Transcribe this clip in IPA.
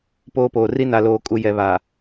p oː˦ p oː˨ r i˦ n a˨ l oː˨ kʼ u˨ j ɛ˨ β a˨

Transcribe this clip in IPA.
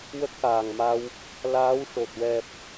w ə˦˥ k̚ x aː˨˩ ŋ m a˧ w | l aː˧˥ w ʂ o˨˩ t̚ w ɛ˨˩ p̚

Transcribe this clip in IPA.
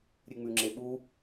ɾʲ ɨ ŋ͡m ʉ ŋ͡ǁ e ɓ u

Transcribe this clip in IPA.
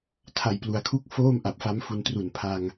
tʰ a˨˩ j p l u˩˦ a̯ kʰ u˥˩ k̚ f oː˥˩ m ʔ a˨˩ p̚ f a˦˥ m f u˧ n t r u˨˩ n pʰ a˧ ŋ

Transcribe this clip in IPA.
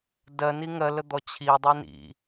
d ɜ n i ŋ ɜ l ə d̪ ɔ t͡ɕʰ i dˤ i n ḭ

